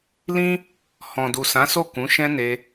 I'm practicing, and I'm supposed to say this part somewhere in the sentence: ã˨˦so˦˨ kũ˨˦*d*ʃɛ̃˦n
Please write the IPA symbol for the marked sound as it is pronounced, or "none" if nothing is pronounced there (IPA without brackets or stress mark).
none